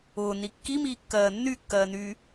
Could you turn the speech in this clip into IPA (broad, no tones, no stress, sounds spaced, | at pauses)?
ʊː n i kː i m iː kː ɜː nː y kː ɜː n yː